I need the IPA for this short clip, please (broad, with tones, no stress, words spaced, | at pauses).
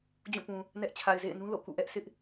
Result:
d͡ʑũ˦˨pũ˨ | nɛ˦ʔ t͡ɕʰa˨ɪ̯zḛ˦˨ɪ̯nũ˦ lo̰˦˨kṵ˦˨ʔɛ˦ʔ sʰɪ˦ʔ